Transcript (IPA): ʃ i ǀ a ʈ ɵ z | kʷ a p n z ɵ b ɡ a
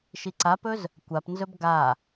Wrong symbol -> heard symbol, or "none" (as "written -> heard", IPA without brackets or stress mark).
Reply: ʈ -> p